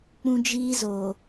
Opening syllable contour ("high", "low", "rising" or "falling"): high